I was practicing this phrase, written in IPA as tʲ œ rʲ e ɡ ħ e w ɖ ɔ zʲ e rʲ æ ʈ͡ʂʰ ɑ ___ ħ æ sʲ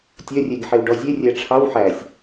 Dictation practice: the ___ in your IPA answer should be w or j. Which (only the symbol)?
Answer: w